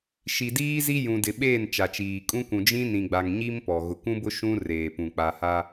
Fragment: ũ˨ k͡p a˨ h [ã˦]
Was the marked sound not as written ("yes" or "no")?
yes